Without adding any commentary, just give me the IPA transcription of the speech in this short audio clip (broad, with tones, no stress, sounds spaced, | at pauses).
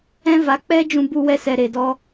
ɛ̃˦ v a˨˦ k͡p ɛ˦ d͡ʒ ũ˧ b u˧ w ɛ˧ s ɛ˨ ɾ e˨ d ɔ˧